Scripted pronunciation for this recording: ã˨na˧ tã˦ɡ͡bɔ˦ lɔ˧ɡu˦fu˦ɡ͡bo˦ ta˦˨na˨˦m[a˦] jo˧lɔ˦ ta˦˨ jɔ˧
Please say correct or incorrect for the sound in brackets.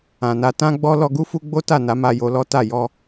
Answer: incorrect: a˧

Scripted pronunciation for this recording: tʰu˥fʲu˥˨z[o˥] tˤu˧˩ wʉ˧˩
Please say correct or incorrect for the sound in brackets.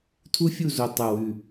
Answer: incorrect: o˧˩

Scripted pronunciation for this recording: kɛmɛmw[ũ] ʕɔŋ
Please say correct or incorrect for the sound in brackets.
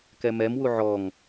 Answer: incorrect: u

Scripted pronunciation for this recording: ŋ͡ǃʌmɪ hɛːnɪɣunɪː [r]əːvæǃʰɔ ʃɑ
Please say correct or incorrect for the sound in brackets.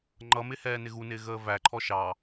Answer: incorrect: ɣ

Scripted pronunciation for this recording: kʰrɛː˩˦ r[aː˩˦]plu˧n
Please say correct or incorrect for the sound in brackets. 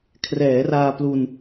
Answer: incorrect: aː˧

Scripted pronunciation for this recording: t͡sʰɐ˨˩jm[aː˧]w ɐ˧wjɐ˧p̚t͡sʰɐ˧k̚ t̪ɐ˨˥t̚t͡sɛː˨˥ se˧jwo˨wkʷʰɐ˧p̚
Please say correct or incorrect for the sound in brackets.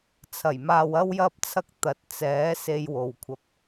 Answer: incorrect: aː˨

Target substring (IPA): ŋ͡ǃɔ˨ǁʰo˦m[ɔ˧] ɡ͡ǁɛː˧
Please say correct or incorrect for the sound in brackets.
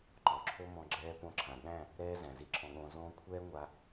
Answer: incorrect: ɔ̃˧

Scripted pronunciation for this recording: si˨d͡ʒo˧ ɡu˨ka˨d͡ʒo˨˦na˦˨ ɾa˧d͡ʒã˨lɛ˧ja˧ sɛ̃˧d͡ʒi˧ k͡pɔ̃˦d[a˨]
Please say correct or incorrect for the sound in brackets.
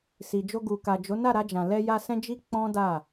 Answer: incorrect: a˦˨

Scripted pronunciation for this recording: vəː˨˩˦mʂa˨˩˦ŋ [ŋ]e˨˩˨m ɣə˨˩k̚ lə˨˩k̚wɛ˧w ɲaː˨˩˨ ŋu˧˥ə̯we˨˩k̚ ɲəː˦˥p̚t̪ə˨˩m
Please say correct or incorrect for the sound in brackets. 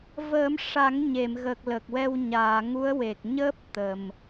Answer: incorrect: ɲ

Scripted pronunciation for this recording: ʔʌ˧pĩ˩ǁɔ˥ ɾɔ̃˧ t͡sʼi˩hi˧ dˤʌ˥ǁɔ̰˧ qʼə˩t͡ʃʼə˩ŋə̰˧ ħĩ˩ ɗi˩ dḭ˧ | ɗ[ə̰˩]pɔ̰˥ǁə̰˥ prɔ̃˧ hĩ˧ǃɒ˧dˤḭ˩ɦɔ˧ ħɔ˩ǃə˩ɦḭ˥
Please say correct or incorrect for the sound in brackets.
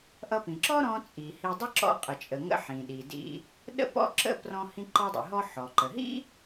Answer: incorrect: ə̰˥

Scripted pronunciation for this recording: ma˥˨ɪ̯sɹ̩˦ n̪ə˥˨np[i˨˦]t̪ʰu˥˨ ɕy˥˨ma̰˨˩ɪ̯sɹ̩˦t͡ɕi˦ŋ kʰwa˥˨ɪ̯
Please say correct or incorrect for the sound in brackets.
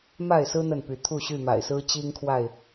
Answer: incorrect: y˨˦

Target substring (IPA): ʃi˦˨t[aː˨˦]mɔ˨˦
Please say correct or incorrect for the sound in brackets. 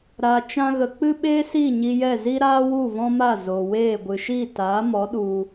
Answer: correct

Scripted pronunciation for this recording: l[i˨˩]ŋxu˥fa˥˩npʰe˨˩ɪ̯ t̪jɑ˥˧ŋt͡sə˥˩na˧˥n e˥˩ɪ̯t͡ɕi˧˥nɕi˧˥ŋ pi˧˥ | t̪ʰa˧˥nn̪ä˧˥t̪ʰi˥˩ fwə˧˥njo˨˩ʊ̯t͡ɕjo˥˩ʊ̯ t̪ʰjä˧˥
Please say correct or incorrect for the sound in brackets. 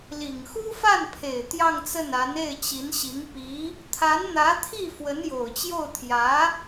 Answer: correct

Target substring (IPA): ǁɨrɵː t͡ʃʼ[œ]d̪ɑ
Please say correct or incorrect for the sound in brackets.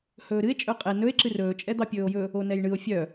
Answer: incorrect: ɛ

